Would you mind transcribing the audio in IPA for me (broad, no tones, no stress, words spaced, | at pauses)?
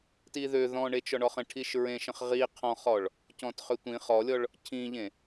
tiðø ðɔ̃ ɳet͡ʃɔɳɔχə̃ ʈʰiʃɹẽ ʃə̃χʁi qʰɔ̃χɔɭ | cɔ̃tχøtʷĩ χɔlʲɔɭ | cʰĩʎẽ